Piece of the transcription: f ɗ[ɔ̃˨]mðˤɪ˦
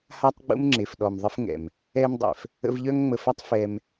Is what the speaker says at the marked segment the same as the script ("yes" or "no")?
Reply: no